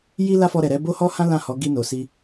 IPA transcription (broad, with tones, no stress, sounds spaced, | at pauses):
j i˦ l a˦ f ɔ˧ ɾ ɛ˨ ɾ ɛ˨˦ b o˦ h ɔ˦ h ã˦ l ã˦˨ h ɔ˨˦ ɡ i˧ n o˨ s i˧